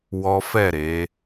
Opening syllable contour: high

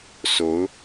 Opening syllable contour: rising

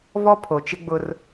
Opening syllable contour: high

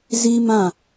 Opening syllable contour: high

